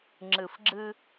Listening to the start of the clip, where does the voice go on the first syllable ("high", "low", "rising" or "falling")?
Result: low